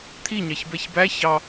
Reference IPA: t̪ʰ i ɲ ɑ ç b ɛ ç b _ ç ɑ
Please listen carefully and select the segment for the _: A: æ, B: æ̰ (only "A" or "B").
A